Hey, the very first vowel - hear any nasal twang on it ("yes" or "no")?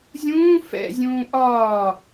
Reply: yes